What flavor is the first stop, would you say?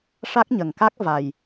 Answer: plain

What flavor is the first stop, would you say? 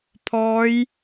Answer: aspirated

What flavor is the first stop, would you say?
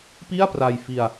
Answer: plain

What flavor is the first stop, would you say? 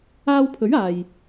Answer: aspirated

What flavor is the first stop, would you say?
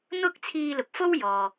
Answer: plain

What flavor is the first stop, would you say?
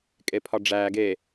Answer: ejective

